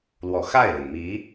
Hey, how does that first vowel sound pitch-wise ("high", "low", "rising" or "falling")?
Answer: low